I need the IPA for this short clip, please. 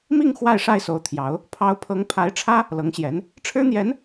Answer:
mi˥˧ŋ xwa˥˧ɪ̯ʂa˥˩ɪ̯so˧˥ʊ̯t̪ʰjɑ˧˥ʊ̯ | pʰɑ˧˥ʊ̯pʰɤ˧˥ŋ pʰa˧˥ɪ̯ʈ͡ʂʰä˥ | lɤ˧˥ŋɕjɛ˧˥n | ʈ͡ʂʰɻ̩˥n̪jɛ˧˥n

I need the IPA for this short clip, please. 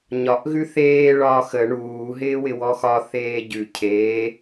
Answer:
ɲɒʔ ɣʉθeː ɭɒːxə ɳuː ɦɪːwɪwɔxɒ θeːɟʉ cʰeː

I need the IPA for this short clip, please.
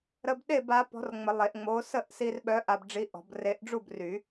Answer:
ɾə˧b ɗe˥˨b a˨˥pɔ̤˨˥rŋ͡mə˨˩˦ lˠe˨˩˦ʔŋ͡mo˨˥ sə˥˨ʔsi˧rɓœ˨˥ ʔa˧bɖ͡ʐi˨˥ ʔɔ̤˨˩˦b re˧ʔɖ͡ʐu˥˨b ry˨˩˦

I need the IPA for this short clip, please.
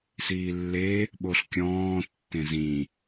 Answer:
siːlːe | ɓoɬkʲɔ̃ː tːẽzĩ

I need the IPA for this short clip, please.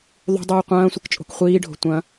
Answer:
ðˤṳdˤuː qʷɐ̃ːsʷɘkt͡ʃʼo̤k χʷiːɖʱo̤ tʷɐ̃

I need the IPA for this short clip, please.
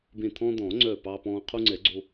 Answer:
bẽ˧˩t̪ʰɔ̃ː˧d̪ɔ̃ː˨˩˦ŋ͡ǀœː˧˩ pɑ˧pɔ̃ː˧ qʰu˧ŋ͡ǀɛ˨˩˦ɡ͡ǀo˧

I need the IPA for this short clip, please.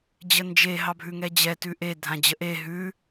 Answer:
d͡ʑənd͡ʒe ɦɑbʱʉŋɛd͡ʑɛ tʉʔe dʱãd͡ʑəʔe ɦʉ

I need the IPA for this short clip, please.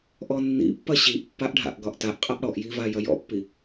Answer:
ʔɔnːḭpːɐ ɕiʔpːaʔɖʱa̰ʔɡɒʔ taʔqʼʌʔ ɽɔʔjiva jɐjɔ̰pːi

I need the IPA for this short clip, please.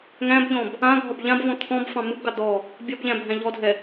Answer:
ŋæ̃bʎɔ̃b | ãɡʱɒb ʎãbvɔ̃ t̪ʰɔ̃bfɑ̃ mɯbɡɑ d̪ɔ | bʲɒbʎæ̃bʱæ̃ ʎɔdʱɛ

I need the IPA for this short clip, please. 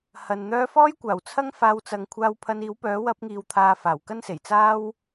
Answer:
hɐ˨n n̪œː˧fɔː˥jkʷaː˨˩wt͡sʰɐ˥ŋ faː˧wt͡sɐ˨˧ŋ kʷʰaː˧wpʰɐ˧niː˨˥w pœː˨˥wɐ˧p̚ŋiː˨wt̪ʰaː˨ faː˨˩wkɐ˥nse˨˩jt͡saː˥w

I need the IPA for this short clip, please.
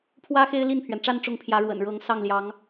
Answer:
pʰwä˥ xe˥ɪ̯li˥˩npʰɥɛ˩nʈ͡ʂa˥˧n ʈ͡ʂʊ˥˩ŋpʰjä˧˥ɻwə̰˨˩n ɻɤ˧˥ŋsɑ˥˩ŋ ljɑ˧˥ŋ

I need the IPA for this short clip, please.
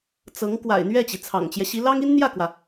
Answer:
t͡sɤ˧˥ŋ kwa̰˨˩ɪ̯ n̪ɥɛ˥˩t͡ɕi˩ t͡sʰɑ̰˨˩ŋt͡ɕjɛ˦ɕi˧˥ lɑ˥ŋi˥n n̪jä˥˩kwä˩

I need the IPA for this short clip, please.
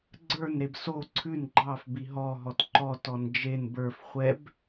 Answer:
ɡ͡ǀə˞n ɾebso ǀʰʉn ɡ͡ǃɑf biɦɔ ɦɔtǃɔt ɔnd͡ʒen bə˞f χʷɛb

